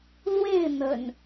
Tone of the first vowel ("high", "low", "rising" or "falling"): falling